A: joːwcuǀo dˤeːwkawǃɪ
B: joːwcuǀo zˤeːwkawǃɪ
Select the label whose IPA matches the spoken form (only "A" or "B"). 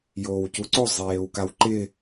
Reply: B